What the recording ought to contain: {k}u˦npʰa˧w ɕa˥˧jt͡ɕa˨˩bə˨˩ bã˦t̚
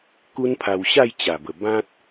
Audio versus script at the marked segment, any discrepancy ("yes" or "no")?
no